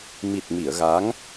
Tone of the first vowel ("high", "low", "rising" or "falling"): low